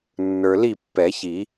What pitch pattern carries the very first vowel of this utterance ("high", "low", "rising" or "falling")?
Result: low